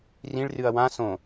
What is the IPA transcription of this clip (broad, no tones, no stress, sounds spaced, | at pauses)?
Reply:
r ĩ ɭ r ɨ ɐ̯ w ã s õ